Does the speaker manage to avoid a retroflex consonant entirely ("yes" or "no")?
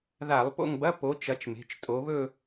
yes